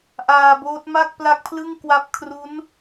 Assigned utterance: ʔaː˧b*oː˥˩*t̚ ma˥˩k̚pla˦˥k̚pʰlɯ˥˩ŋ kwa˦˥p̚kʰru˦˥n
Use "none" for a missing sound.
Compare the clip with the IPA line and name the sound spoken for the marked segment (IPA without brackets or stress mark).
oː˦˥